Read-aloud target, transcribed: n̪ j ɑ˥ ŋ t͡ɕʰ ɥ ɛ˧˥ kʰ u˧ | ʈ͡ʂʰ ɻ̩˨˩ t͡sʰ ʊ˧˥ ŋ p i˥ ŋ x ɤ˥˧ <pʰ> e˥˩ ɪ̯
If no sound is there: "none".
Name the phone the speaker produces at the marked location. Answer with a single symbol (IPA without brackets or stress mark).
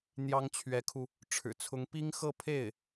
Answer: pʰ